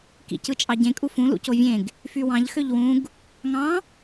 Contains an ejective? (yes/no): yes